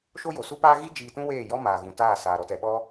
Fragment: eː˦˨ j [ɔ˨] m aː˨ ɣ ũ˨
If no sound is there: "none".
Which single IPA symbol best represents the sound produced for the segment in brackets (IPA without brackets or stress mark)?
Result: ɔ˦